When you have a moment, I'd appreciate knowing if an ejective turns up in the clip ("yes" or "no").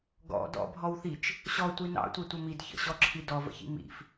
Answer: no